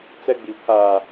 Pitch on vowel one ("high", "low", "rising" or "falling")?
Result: high